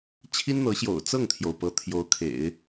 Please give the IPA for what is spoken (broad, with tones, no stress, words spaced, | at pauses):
t͡ɕʰi˥nn̪ɤ˧˥ɕjo̰˨˩ʊ̯ t͡sɤ˥˩ŋt̪ʰjo˩ʊ̯ pɤ˧˥t̪ʰjo˧˥ʊ̯kʰḛ˨˩˦ɪ̯